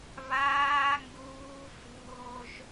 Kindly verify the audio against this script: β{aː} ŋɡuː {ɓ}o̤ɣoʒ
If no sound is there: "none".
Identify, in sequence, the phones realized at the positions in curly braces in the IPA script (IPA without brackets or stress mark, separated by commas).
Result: aː, f